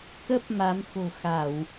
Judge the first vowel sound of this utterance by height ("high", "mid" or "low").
mid